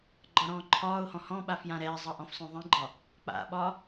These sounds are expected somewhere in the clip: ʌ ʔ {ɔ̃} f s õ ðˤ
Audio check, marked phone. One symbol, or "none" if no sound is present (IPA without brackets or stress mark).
ɔ̃